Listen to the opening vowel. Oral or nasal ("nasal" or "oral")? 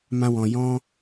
nasal